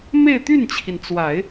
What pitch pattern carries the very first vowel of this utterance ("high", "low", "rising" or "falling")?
falling